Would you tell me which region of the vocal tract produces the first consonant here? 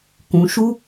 velum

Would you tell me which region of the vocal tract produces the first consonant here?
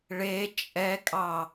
retroflex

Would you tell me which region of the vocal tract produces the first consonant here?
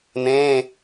tongue tip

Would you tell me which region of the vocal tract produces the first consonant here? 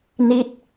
tongue tip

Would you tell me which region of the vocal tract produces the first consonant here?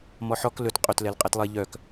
lips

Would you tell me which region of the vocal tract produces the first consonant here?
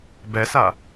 lips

